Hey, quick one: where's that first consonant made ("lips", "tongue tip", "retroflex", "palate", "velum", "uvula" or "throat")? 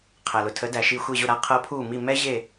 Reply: uvula